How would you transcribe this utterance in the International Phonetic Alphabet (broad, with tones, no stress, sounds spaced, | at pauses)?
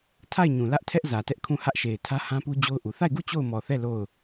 tʰ a˦˨ ɪ̯ ɲ ũ˨ l ä˦ ʔ tʰ ɛ˦ ʔ z ä˨ t ɛ˦ ʔ kʰ ũ˦˨ h ä˦ ʔ ʃ e˨ ɪ̯ tʰ ä˦ h ã˦ p u˦ d͡ʑ o˦ ʊ̯ ʔ u˨ θ a˦˨ ɪ̯ ɡ u˦˨ t͡ɕ o˦˨ ʊ̯ m ɔ˨ θ ɛ˦˨ l o˦˨ ʊ̯